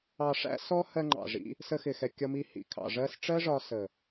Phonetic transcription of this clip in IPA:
ɑ˧ʂæ̰˦sɔ˦ hɜ˧ŋ͡ǃɑ̰˨ʐḭ˧ | sə˧ xɪ˨xɛ˨ kʲʌ˧mi˧hḭ˨ kʰɑ̰˨ʐɜ˧sʈ͡ʂɜ˦ʐɒ˧ sə˨

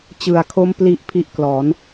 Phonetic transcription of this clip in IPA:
t͡ɕɯ˨˩a̯kʰo˦˥m pli˥˩ʔ pʰi˦˥ʔklɔː˩˦n

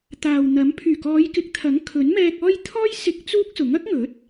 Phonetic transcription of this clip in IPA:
t̪aː˨wn̪ɐ˨˥m pʰyː˨˩kɔː˨˧jkɪ˨˥k̚t̪ʰɐ˨˥ŋ kʰɵ˨˥nmɛː˧k̚ɔː˥j t̪ʰɔː˥jsɪ˧k̚ t͡suː˥k̚sʊ˨˥ŋ ɐ˥k̚ŋɵ˨˥t̚

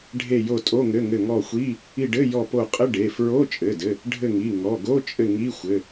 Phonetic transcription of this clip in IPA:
ɖʱe˦˨jo˦˨tʼo˧˥˧ ŋɘ˧˥˧ŋɘ˦˨ ŋɔ˦˨xʷi˧˥˧ | i˦˨ɖɘ˧˥˧ jɔ˦˨po˦˨ qʼɘ˧˥˧ɖe˩˧˩ fɹo˧˥˧t͡ʃʼɘ˩˧˩dɘ˩˧˩ | ɖʱɘ˦˨ŋi˩˧˩ ŋɔ˩˧˩ ɡo˧˥˧t͡ʃʼɘ˦˨ ŋi˧˥˧xʷɘ˩˧˩

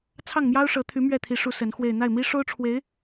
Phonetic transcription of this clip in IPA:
t͡sʰɑ˥˩ŋmjɑ˥ʊ̯ʂɤ˧˥t̪ʰy˧˥ mɥɛ˥˩t̪ʰi˧˥ ʂu˧˥ sə˧˥nxwe˥˧ɪ̯ n̪a˥˩ɪ̯mi˥ʂo˥ʊ̯ʈ͡ʂʰwe˧˥ɪ̯

